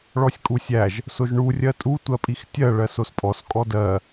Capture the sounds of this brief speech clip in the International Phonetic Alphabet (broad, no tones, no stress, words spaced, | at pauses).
ɭɔsʲkʼusʲæʒ | soʒɳu rʲɜtʼu tʷɜpʼixtʲɜ ɭɜsospʼɔs kʼɔdɜ